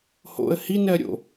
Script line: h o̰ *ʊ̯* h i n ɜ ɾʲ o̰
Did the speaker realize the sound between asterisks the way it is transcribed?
no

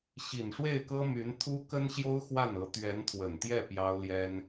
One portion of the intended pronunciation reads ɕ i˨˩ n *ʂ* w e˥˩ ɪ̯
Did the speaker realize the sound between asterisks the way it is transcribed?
yes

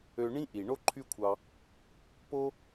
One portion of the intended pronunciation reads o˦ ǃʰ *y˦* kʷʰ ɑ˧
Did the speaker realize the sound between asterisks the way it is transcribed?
yes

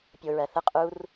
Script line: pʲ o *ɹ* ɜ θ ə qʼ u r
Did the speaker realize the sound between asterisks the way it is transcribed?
yes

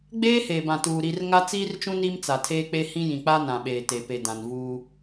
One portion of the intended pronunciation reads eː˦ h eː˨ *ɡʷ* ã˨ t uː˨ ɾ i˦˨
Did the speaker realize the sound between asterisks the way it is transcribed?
no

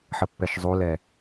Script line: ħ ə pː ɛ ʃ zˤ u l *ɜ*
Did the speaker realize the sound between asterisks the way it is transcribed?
no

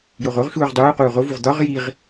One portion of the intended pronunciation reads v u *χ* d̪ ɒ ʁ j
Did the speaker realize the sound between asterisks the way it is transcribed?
no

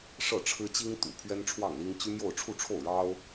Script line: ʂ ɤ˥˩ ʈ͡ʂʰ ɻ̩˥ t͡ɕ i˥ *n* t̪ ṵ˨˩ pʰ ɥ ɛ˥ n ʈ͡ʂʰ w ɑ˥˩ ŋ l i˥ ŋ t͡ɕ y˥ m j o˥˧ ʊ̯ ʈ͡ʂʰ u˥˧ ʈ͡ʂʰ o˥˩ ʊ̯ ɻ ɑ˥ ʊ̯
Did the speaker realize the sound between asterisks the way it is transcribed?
no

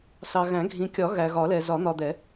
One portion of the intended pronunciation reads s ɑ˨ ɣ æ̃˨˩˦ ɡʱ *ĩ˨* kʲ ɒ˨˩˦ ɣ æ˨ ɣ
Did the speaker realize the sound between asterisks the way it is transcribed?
yes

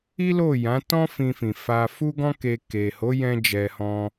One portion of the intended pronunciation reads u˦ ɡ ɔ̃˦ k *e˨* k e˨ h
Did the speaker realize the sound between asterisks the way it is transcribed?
no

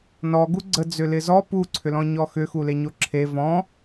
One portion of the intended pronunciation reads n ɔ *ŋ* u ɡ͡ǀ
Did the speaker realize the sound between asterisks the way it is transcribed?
no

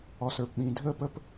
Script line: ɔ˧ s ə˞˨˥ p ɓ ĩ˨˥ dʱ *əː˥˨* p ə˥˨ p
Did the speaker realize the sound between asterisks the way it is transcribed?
yes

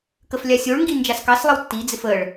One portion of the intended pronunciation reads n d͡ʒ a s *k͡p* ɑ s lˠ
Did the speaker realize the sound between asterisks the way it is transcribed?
no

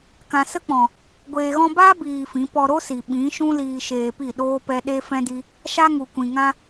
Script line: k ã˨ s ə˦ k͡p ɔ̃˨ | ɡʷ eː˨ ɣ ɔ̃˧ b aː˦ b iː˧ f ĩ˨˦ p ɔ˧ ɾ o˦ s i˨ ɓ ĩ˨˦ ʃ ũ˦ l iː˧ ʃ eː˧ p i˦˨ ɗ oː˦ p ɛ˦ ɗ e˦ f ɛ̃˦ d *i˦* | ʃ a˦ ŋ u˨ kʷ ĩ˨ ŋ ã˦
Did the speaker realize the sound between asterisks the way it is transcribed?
yes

